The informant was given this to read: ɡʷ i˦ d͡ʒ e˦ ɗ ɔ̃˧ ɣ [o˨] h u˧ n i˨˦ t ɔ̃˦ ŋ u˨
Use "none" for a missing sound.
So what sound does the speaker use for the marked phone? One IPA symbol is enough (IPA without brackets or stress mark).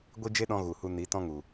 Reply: u˨